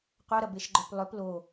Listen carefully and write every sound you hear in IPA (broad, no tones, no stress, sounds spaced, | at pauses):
qʷ œ ɾ ɐ b e ʃ ɡ͡ǃ œ p lˠ ʏ p l o